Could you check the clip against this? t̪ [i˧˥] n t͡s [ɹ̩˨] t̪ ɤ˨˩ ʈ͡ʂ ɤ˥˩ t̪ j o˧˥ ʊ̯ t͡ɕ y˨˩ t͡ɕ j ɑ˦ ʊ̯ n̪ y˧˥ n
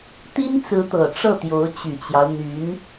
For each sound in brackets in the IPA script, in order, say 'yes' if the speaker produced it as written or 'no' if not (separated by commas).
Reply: no, no